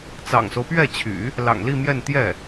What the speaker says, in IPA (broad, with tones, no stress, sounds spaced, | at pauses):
t͡s ɑ̰˨˩ ŋ s o˦ ʊ̯ p ɥ ɛ˥˩ t͡ɕʰ y̰˨˩˦ | l ɑ̰˨˩ ŋ l i˥˧ m j ɛ˥˧ n t̪ j ɛ˥˩